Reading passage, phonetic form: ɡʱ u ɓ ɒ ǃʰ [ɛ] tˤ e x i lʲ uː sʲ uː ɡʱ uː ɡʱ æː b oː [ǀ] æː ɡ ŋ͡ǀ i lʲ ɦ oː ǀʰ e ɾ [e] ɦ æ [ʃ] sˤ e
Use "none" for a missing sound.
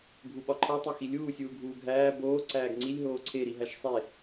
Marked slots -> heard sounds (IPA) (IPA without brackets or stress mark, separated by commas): æ, ǀ, i, ʃ